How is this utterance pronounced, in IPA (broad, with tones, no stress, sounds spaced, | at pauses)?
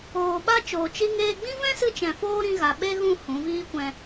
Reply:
oː˧ ɓ a˦ t͡ʃ oː˨ t͡ʃ i˧ ŋ eː˧ ɡ͡b ĩ˦ v ɛ̃˦ s ɨ˧ t͡ʃ ɛ̃˨ f oː˦ ɾ ĩ˧ ɣ a˨ ɓ e˦ ɣ ũ˦˨ h ũ˨˦ v iː˦ kʷ ɛ̃˧